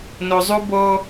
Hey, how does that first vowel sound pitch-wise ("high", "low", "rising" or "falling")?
low